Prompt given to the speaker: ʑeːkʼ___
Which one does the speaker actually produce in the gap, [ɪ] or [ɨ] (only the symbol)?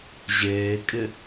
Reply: ɪ